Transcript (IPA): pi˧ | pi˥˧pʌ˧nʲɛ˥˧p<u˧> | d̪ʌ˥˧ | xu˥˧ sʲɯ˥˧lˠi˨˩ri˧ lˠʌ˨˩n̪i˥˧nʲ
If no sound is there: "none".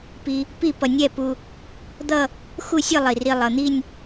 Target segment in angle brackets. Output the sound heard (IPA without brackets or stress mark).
u˧